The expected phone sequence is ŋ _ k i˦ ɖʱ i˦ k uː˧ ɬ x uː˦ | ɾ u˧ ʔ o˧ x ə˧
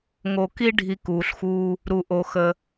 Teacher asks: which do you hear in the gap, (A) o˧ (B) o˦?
A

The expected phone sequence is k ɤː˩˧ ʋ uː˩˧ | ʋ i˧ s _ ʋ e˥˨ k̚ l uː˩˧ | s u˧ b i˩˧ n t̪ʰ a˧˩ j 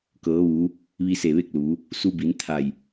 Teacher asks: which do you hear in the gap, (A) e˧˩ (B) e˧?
A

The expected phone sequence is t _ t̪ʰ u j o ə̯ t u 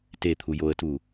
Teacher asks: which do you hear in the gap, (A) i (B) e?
B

